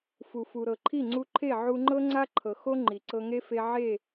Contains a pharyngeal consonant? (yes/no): yes